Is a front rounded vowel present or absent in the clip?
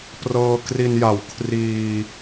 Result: absent